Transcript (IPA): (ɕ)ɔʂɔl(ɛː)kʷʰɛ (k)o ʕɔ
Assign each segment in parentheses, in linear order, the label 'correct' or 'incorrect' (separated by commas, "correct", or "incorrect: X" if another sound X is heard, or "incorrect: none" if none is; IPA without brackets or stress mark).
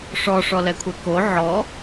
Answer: incorrect: ʂ, incorrect: ɛ, correct